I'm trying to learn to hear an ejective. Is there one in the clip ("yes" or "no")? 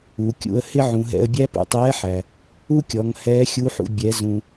no